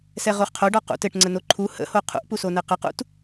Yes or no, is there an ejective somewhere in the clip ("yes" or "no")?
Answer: no